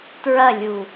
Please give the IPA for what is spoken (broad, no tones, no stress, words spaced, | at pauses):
tɹɐlʲu